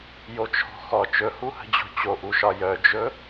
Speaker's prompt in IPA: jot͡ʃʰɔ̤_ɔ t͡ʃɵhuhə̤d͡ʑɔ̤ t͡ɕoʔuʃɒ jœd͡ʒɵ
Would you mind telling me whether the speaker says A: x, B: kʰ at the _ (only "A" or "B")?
A